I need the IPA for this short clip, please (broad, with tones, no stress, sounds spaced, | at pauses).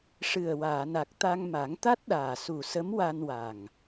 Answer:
ʂ ɨ˨˩ ə̯ w aː˨˩˨ n a˨˩ k̚ t̪ a˧ ŋ m a˨˩˦ ŋ t̪ a˦˥ t̚ ɗ aː˨˩ s u˨˩ s ə˧˥ m w a˧ n w a˨˩ ŋ